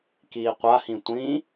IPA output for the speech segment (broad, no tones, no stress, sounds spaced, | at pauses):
k iː qʷ a h ĩ tʷ ĩ